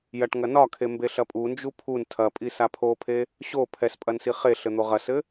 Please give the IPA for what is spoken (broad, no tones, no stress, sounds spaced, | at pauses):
j ɐ ʈ ŋ ɐ n ɒ kʰ e m b e ɬ ɐ pʼ u n d͡ʒ u pʰ u n tʰ ɐ pʼ i s a pʰ o pʰ e | ɕ o pʰ ɛ s pʼ ɐ n s i χ e ɬ ɘ n̪ o ʁ ɐ s ɘ